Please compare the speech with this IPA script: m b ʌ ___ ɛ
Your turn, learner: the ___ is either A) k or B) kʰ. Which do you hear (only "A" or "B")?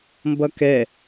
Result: A